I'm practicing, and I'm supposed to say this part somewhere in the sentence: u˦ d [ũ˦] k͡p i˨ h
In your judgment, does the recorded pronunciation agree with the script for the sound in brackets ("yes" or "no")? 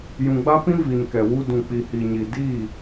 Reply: no